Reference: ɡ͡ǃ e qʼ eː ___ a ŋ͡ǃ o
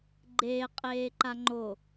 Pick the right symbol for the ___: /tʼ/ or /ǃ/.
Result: ǃ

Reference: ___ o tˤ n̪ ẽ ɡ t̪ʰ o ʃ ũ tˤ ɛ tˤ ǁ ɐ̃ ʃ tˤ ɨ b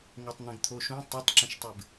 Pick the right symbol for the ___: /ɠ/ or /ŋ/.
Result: ŋ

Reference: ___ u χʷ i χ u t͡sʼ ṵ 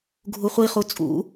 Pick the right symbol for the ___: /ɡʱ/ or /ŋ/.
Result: ɡʱ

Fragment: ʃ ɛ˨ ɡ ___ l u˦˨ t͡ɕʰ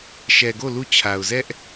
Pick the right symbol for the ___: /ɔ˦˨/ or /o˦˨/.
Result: o˦˨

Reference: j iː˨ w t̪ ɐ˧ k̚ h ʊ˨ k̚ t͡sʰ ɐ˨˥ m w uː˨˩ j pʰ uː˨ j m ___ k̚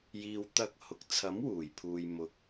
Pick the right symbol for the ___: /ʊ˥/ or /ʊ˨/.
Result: ʊ˨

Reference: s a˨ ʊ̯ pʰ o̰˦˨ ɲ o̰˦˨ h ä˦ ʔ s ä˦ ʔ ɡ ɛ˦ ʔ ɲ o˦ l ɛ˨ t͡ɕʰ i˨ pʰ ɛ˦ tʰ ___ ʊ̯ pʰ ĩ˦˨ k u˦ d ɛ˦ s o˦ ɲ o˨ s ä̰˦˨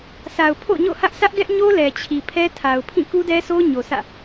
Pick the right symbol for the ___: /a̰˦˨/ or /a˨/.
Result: a˨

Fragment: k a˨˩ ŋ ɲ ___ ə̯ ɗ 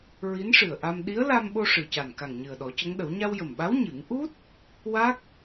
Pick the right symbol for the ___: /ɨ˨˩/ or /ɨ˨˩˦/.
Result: ɨ˨˩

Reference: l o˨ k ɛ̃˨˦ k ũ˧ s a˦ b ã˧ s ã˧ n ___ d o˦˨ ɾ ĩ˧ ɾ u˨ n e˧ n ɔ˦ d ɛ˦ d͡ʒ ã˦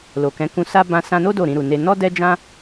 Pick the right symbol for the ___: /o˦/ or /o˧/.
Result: o˦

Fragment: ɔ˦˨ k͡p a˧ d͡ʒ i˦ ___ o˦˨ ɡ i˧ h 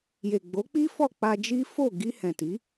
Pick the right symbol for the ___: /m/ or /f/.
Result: f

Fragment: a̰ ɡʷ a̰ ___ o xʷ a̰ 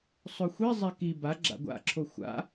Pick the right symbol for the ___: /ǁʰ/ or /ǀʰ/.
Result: ǁʰ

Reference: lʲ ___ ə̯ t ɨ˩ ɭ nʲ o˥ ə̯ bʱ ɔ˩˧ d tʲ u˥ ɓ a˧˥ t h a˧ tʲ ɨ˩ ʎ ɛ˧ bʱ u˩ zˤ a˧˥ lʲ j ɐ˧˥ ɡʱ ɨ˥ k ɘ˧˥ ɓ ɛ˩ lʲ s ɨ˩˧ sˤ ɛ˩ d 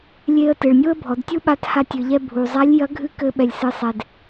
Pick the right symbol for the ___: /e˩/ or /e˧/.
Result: e˧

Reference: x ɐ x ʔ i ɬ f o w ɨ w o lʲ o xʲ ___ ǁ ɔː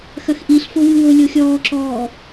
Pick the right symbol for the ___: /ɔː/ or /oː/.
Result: ɔː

